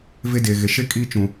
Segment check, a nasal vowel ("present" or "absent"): present